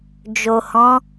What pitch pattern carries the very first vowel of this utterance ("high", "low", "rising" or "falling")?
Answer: low